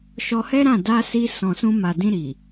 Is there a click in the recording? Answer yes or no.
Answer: no